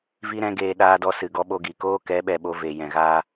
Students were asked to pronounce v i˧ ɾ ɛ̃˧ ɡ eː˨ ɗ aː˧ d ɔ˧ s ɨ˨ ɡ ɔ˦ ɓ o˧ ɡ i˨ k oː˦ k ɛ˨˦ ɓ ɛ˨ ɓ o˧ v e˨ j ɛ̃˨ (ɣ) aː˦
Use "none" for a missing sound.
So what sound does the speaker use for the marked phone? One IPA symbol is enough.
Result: ɣ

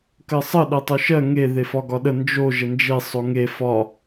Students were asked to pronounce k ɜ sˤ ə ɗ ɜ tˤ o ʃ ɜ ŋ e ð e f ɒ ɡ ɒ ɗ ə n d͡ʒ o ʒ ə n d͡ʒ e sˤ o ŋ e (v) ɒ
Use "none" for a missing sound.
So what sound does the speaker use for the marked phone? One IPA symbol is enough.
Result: f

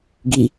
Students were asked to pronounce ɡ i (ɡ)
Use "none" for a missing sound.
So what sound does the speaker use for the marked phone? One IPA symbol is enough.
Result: none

